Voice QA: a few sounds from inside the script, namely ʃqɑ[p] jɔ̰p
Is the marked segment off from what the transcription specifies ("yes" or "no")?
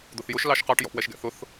yes